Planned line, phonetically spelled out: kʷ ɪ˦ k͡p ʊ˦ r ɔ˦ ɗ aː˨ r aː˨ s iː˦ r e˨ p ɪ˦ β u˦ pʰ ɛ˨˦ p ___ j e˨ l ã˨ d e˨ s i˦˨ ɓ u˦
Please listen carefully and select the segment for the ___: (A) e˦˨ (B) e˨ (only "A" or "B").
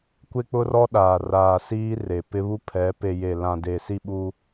B